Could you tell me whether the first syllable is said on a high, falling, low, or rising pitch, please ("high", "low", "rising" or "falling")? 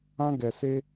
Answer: high